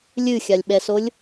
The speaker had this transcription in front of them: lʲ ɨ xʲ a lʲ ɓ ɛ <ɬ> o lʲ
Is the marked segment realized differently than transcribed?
yes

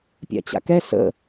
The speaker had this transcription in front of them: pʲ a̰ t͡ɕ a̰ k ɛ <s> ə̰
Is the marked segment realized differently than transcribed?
no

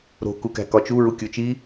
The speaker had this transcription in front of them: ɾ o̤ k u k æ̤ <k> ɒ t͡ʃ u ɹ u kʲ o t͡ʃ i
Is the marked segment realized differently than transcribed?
no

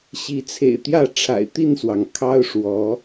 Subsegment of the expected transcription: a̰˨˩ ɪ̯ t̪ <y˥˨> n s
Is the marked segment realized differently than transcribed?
yes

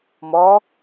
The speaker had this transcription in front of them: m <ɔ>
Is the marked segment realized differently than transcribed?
no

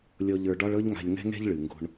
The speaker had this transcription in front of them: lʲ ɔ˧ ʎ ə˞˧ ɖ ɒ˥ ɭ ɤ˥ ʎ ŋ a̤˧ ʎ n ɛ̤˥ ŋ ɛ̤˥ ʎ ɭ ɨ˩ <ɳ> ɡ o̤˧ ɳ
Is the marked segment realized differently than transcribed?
yes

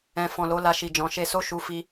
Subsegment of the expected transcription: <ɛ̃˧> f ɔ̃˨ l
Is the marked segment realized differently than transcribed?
yes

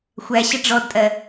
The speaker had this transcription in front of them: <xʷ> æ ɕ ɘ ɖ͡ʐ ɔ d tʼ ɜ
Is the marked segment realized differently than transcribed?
no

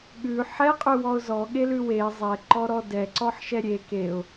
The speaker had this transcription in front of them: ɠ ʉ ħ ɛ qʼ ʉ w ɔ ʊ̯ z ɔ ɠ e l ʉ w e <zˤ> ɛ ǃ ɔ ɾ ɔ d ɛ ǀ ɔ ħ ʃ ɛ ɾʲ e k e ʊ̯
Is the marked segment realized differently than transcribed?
no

